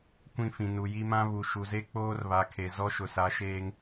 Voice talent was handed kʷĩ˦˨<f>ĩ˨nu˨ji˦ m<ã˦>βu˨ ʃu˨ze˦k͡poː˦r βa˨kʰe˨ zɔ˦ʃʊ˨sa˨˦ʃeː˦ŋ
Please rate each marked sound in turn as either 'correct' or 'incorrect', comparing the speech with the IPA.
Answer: correct, correct

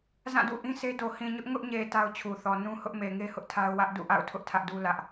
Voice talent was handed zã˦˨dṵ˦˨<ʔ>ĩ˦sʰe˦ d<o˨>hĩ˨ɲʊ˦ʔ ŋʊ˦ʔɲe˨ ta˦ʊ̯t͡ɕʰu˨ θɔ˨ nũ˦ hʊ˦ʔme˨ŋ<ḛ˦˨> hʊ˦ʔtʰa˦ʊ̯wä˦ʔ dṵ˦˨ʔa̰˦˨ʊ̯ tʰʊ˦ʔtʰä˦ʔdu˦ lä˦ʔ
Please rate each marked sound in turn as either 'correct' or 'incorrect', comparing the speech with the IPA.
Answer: correct, correct, incorrect: e˦

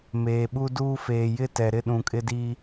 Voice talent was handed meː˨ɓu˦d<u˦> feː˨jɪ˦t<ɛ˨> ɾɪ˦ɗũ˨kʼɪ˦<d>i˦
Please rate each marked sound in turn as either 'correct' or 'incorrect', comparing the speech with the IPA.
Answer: incorrect: uː˦, correct, correct

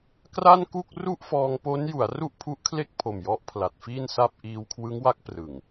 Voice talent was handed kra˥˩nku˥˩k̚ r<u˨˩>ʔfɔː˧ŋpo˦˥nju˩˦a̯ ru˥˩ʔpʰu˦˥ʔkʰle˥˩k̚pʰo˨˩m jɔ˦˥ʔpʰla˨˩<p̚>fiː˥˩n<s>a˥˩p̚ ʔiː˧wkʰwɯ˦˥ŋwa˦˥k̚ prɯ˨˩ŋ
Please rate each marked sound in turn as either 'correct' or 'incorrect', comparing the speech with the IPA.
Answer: incorrect: u˥˩, incorrect: t̚, correct

